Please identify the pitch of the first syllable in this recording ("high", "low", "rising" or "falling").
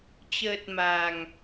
low